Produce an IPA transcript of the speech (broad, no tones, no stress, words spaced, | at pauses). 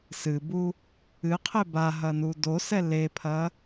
sɨbu | ɨqʰe baɦɐnu dosɛ lepʰɐ